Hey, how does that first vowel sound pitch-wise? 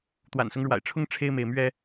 low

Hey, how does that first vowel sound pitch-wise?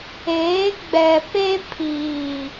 rising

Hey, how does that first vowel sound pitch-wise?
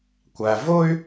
low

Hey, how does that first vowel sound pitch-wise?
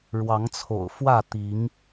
rising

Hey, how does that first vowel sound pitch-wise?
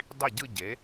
falling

